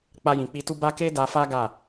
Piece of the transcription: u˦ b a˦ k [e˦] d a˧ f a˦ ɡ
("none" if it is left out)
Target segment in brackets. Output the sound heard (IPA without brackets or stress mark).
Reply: e˦